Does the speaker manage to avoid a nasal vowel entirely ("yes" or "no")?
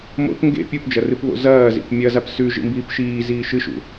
yes